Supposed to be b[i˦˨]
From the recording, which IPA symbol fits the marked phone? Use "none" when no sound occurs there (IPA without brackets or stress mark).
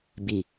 i˨